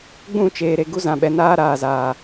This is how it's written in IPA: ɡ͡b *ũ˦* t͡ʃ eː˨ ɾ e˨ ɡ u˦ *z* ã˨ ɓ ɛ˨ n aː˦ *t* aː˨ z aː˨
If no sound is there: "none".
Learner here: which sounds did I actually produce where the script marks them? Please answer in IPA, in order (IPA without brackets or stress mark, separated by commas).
ũ˦˨, z, ɾ